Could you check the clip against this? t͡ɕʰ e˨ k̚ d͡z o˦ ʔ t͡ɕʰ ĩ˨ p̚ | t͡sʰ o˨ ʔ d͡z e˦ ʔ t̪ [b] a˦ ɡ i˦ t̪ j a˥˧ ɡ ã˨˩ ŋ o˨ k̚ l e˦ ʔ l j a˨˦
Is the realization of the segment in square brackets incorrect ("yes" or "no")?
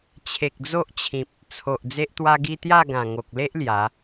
yes